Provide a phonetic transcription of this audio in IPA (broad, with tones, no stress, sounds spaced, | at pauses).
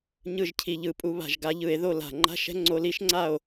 ɲ ɯ˥˨ ʒ cʰ i˧˩˧ ʎ ɯ˧˩ pʼ u˨˦ β a̤˧˩ ʒ ɡ a˨˦ ʎ ɯ˧˩˧ e̯ ð o˥˨ l a̤˧˩ ŋ͡ǃ a̤˦˥ ʃ ɛ̤˦˥ ŋ͡ǀ o˦˥ l i˦˥ ʃ ŋ͡ǀ a˥˨ o̯